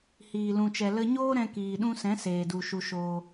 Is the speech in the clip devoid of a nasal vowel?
no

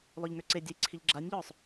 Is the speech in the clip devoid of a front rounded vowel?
no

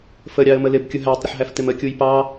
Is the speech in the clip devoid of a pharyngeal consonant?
no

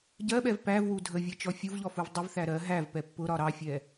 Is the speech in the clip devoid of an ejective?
yes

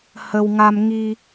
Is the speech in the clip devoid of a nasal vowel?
yes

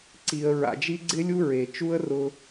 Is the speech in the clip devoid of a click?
no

